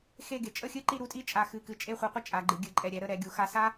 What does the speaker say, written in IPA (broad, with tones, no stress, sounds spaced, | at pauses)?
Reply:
x e˥˧ ɡ e˩˧ t͡ʃʼ ə˥˧ xʲ ɨ˥ ǃ i˥˧ ɾ u˥ tʼ i˥ t͡ʃʼ a˧˩ x ɨ˧˩ k ɨ˧ t͡ʃʼ e˥˧ χʷ ɨ˧ qʷ ɨ˥ t͡ʃʼ a˩˧ ɡ͡ǃ ɨ˩˧ ɡʲ ɨ˩˧ ǃʼ ɛ˧˩ ɾʲ ɛ˧ ɾ ə˥˧ ɾ ɛ˩˧ ɡʲ u˩˧ x a˧ s a˥